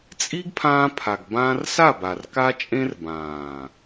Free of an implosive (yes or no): yes